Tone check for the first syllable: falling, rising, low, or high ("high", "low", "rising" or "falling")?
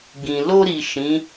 low